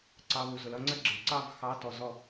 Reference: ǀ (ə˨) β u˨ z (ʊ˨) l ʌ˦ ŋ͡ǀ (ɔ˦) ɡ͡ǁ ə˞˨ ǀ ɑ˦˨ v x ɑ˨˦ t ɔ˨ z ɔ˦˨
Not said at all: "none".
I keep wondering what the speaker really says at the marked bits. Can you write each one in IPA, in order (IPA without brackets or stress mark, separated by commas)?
ɑ˨, ʊ˨, ə˦